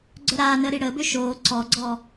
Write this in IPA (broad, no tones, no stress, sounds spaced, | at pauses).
ɡ͡ǀ œ ɾ aː n əː ɾ i ɽ əː b ø ʃ oː ǀ ɔ ɡ͡ǀ ɔː